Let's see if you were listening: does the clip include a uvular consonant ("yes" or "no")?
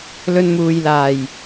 no